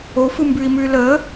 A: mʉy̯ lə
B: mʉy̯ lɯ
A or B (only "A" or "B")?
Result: A